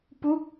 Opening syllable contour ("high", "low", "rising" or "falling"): falling